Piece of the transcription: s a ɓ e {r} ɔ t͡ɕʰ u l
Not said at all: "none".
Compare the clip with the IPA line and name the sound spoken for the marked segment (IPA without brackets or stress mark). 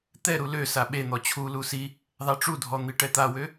n̪